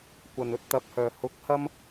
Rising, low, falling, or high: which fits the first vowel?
low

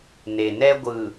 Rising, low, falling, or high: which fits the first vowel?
low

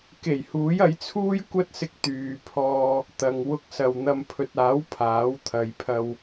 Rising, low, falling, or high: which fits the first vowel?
low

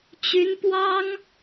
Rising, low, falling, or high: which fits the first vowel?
rising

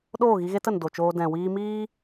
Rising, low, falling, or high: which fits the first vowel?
falling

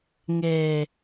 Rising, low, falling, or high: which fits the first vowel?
low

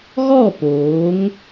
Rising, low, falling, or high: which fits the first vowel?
falling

